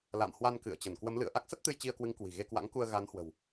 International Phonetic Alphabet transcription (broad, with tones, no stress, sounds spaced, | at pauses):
l a̰˧˨ m h w a˧ n k ɨ̰˧˨ ə̯ t͡ɕ ə˧˩ n k w ə˨˦ m l ɨ̰˧˨ ə̯ ʔ a˦˥ k̚ s ə˦˥ t̚ t̪ ɨ˧ j t͡ɕ i˧ ə̯ k w ɨ˨˦ ŋ k w i̤˨˩ ɣ e˧ k w a̰˧˥ ŋ k u˧ ə̯ ɣ a˨˦ n h w ə̤˨˩ w